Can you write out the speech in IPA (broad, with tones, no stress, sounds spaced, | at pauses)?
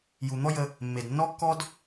j u˨ n̪ ɔ˦ j ə˧ | mː e˨ d nː ɔ˦ kː ɔ˦ d